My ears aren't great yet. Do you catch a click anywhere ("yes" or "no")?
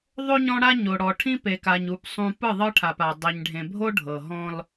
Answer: no